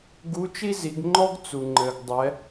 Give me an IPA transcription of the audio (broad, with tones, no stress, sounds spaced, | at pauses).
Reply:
ɡ u˧˥ t͡ʃ i˥ z i˩˧ ɡ ŋ͡ǃ ɔ˥ ɡ t͡s u˩ ŋ͡ǃ ɘ˩ ɡ dˤ ɛ˩˧